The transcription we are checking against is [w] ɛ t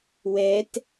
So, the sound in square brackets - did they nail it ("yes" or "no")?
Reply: yes